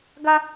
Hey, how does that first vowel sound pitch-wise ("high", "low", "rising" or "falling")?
high